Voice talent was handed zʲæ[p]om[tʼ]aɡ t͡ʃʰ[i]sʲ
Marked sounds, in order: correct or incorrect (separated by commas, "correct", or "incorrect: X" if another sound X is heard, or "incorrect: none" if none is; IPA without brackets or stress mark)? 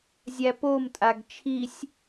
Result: correct, correct, correct